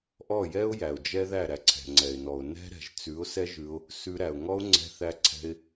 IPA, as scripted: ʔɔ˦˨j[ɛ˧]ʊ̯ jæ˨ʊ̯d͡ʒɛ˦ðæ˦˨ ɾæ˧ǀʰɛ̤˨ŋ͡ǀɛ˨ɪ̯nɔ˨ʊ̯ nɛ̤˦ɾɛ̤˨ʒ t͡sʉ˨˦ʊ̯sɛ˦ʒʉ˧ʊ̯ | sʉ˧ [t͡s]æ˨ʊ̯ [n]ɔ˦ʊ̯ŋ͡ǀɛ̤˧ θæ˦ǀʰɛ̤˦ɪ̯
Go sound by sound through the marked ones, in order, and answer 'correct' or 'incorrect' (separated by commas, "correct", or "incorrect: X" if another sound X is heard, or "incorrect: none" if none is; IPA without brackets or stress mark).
incorrect: ɛ˦, incorrect: ɾ, incorrect: ŋ